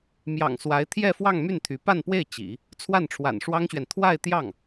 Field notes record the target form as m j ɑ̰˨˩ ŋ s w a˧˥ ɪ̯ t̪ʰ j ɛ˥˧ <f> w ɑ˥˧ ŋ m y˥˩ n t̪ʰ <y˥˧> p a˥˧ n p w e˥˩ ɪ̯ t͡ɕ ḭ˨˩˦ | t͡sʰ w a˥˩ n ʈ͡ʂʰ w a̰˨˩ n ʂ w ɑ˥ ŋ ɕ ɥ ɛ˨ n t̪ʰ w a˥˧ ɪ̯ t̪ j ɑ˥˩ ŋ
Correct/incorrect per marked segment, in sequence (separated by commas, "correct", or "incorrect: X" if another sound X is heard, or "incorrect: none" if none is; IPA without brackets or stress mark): correct, incorrect: y˧˥